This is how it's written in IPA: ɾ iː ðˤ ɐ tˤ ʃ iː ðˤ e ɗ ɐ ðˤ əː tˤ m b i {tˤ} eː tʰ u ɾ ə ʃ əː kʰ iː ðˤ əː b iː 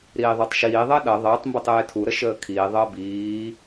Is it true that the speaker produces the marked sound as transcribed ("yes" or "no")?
yes